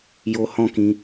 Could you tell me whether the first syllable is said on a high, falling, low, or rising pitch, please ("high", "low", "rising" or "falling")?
high